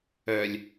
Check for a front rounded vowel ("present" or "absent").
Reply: present